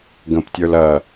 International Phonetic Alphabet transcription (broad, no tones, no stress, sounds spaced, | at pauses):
ɡ ə̃ p tʲ ə˞ l ɐ